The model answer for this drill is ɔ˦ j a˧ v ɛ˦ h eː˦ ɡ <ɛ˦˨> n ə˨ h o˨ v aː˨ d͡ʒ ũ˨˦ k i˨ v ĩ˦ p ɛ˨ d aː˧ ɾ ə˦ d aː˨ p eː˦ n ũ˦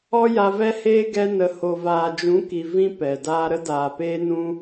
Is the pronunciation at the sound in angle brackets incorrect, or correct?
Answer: incorrect